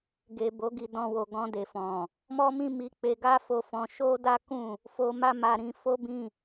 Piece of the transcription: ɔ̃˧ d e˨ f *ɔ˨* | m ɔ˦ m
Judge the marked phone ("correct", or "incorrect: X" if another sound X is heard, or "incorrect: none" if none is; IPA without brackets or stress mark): incorrect: ɔ̃˨